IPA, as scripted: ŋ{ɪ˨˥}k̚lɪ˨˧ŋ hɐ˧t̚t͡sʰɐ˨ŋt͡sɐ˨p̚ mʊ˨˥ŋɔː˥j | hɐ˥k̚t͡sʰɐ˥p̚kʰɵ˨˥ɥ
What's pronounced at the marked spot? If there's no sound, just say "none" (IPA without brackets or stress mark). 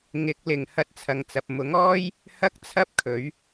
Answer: ɪ˨˥